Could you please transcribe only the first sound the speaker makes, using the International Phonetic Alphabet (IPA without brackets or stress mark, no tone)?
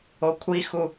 o